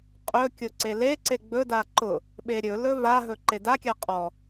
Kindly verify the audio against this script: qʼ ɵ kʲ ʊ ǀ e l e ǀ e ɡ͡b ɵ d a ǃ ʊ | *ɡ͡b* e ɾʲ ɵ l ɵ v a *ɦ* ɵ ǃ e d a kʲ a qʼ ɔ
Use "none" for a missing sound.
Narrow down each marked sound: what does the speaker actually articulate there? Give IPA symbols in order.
ɓ, ɦ

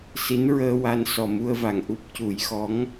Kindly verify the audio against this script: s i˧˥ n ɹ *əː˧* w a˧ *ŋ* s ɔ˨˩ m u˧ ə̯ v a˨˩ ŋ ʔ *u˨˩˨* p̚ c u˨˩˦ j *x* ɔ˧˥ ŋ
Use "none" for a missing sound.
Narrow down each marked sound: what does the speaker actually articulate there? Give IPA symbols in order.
əː˧, n, u˦˥, x

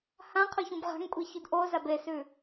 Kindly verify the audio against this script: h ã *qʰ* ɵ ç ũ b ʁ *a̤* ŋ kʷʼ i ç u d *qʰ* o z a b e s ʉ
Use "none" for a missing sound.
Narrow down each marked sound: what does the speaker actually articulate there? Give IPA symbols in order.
qʰ, a̤, ʔ

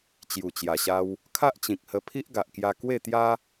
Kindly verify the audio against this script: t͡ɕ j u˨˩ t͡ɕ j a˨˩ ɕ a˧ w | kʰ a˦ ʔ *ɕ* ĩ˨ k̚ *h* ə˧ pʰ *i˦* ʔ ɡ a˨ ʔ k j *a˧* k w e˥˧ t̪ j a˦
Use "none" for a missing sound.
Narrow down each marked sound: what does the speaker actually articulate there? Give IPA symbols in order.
t͡ɕ, h, i˦, a˧

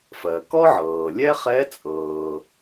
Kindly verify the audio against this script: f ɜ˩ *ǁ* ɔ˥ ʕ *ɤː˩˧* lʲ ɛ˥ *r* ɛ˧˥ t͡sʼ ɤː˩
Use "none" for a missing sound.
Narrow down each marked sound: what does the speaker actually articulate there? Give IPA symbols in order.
k, ɤː˩, χ

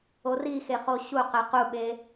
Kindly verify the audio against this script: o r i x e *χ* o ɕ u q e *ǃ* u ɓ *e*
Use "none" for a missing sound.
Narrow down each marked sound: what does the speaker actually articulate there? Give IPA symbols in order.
χ, q, e

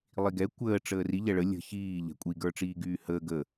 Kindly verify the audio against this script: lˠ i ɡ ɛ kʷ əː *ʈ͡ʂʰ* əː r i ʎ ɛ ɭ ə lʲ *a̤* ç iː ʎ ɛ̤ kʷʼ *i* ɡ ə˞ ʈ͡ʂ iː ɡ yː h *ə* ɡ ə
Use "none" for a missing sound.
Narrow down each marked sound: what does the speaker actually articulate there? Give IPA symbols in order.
ʈ͡ʂ, ə̤, i, əː

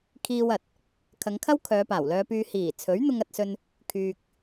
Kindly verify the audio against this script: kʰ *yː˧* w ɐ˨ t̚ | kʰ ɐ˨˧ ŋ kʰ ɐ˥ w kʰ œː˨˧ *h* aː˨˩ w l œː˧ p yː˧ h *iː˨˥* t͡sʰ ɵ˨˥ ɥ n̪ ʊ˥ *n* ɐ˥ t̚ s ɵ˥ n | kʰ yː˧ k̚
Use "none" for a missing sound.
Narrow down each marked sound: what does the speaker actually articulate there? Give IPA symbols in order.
iː˧, p, iː˨˩, ŋ

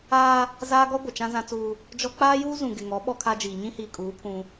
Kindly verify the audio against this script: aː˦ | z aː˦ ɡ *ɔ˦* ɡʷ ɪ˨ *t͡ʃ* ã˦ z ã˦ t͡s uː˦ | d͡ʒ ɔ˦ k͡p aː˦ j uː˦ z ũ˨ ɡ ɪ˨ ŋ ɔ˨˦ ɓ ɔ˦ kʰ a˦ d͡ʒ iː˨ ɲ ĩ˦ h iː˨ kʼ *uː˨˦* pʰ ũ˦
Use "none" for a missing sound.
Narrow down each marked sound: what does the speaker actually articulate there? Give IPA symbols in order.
ɔ˦, t͡ʃ, uː˨˦

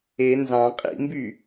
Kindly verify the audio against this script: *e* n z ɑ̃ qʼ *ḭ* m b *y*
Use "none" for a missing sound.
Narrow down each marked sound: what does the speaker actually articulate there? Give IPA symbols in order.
e, ḭ, y

